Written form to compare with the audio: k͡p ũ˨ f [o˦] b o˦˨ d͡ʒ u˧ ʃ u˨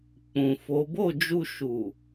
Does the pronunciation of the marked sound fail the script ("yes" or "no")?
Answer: yes